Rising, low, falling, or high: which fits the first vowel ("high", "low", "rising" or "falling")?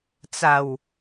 low